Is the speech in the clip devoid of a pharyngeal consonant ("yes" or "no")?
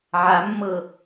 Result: no